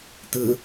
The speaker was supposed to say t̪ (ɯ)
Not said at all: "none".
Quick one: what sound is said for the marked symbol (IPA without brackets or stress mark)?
ɯ